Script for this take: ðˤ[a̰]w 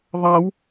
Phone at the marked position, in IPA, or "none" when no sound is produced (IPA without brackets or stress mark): a